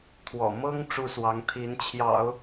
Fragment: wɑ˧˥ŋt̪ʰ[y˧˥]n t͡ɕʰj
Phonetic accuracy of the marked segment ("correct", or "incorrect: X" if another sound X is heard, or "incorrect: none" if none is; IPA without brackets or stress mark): incorrect: i˧˥